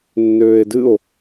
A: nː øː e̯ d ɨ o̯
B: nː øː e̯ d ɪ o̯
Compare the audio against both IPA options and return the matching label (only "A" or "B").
A